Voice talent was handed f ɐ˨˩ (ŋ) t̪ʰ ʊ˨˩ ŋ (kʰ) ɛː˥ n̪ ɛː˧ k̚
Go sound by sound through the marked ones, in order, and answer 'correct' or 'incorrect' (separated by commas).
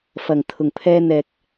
correct, incorrect